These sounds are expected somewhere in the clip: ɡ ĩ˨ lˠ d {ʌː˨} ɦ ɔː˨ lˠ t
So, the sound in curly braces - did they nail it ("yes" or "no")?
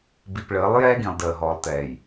no